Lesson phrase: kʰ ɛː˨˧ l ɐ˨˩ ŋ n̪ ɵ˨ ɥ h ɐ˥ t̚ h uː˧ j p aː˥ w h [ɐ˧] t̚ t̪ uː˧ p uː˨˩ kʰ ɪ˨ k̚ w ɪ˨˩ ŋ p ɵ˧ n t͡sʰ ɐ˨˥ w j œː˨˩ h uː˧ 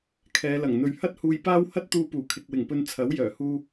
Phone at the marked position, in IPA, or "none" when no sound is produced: ɐ˥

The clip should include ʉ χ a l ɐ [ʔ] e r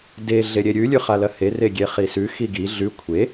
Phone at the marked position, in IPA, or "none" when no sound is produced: h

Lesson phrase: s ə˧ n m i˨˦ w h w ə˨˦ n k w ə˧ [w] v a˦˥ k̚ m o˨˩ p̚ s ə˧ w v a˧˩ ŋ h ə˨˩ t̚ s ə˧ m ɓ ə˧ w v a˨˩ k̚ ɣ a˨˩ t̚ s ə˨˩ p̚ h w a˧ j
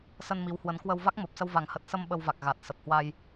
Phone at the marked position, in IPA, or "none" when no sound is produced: w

